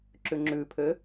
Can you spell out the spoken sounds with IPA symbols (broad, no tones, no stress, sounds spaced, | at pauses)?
ǁ ʉ ŋ͡ǁ ʉ pʰ ø